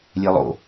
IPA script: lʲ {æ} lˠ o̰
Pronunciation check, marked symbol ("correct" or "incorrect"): incorrect